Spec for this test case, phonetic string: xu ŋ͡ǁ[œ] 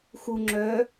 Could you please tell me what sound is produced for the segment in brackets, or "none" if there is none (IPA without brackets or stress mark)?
œ